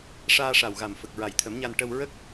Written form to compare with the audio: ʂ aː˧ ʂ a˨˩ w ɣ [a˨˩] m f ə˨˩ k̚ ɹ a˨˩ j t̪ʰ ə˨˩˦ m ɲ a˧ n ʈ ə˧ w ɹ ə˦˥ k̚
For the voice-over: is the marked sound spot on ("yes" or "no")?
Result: yes